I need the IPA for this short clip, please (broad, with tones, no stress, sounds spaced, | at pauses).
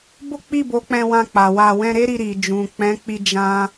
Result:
b o˦ k͡p i˦˨ b o˨˦ k͡p ɛ̃˧ w ã˧ k͡p a˨ w a˧ w ɛ̃˧ ɾ e˦ ɾ i˧ ɾ i˨ d͡ʒ ũ˨ k͡p ɛ̃˨˦ k͡p i˧ d͡ʒ ã˦